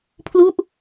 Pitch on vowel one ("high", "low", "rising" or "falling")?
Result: falling